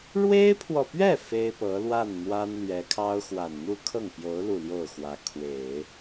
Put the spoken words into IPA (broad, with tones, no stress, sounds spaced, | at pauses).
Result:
ɻ w e˥ ɪ̯ pʰ w ɔ˨ p ɥ ɛ˥˩ f e˥ ɪ̯ p ɤ˧˥ l w a˥˩ n n̪ w a˥ n l ɥ ɛ˧˥ kʰ ɑ˥ ʊ̯ x w a˨˩ n n̪ u˥˧ kʰ ɤ˥˩ ŋ p j o˧˥ ʊ̯ l u˥˧ l j o˥˩ ʊ̯ x w ä˧˥ kʰ w e˨˩˦ ɪ̯